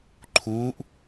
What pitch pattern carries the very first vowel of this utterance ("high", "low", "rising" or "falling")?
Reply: rising